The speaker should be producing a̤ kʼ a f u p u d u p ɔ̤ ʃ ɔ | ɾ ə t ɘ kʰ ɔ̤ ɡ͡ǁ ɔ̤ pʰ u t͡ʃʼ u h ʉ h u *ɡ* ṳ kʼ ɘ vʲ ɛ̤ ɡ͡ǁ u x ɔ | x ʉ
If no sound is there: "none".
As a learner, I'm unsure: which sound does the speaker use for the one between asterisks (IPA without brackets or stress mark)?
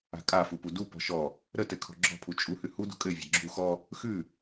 d